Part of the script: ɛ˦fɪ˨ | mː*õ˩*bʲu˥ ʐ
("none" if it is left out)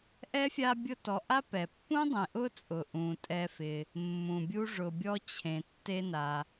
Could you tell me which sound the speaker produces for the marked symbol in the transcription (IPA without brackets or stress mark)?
ũ˩